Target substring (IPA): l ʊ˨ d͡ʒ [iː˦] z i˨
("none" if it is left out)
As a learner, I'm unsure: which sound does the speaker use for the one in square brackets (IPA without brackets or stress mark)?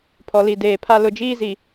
iː˦